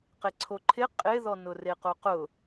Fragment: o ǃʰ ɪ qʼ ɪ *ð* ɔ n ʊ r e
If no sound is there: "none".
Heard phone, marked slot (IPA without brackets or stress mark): ð